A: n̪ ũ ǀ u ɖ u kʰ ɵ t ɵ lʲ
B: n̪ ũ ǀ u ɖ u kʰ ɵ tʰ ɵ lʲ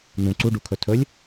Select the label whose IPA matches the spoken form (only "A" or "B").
B